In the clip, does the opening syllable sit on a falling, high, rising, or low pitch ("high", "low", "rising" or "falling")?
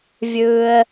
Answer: low